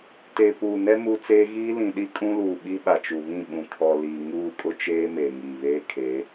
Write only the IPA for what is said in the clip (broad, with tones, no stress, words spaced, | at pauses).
teː˨puː˨nɛ˦ muː˦t͡seː˦ ɣiː˦ lĩ˨ɗi˦ kʼũ˦luː˨ ɓi˦ɓa˨t͡ʃu˨βĩ˦˨ ɓũ˨kʰɔ˨ liː˨ ŋuː˦˨kʼʊ˦t͡ʃeː˦ meː˨ŋiː˨βeː˦ kʰeː˨˦